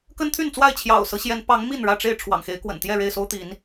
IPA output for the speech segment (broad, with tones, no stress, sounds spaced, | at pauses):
k ə˦ n t̪ʰ y˥˨ n t͡s w a˥˨ ɪ̯ t͡ɕʰ j ɑ̰˨˩ ʊ̯ s ɤ˦ ɕ j ɛ˨˦ n p ɑ˨˦ ŋ m i˥˨ n ɻ ä˥˨ ʈ͡ʂ e˥˨ ɪ̯ ʈ͡ʂʰ w ɑ̰˨˩ ŋ x e˨˦ ɪ̯ k w ə̰˨˩ n t̪ j ɛ˥˨ ɻ e˥˨ ɪ̯ s o˦ ʊ̯ t̪ i˨˦ n